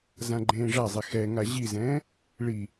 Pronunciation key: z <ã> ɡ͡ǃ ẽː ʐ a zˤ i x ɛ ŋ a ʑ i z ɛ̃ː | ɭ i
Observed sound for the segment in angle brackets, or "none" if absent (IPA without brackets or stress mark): ã